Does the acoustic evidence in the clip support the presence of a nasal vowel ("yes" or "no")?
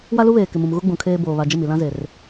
yes